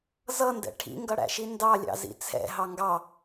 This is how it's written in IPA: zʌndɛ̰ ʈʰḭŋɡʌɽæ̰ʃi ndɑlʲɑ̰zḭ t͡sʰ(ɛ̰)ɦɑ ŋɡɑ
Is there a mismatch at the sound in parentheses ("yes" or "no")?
no